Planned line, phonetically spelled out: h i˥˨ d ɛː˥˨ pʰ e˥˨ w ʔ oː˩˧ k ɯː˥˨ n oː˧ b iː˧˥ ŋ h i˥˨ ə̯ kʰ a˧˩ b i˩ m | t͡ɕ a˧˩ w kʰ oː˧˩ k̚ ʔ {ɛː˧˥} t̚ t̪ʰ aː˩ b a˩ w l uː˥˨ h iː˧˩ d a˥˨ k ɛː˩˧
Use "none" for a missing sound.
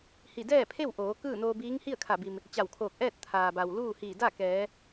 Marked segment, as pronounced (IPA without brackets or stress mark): ɛː˥˨